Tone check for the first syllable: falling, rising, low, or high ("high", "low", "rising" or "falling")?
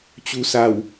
low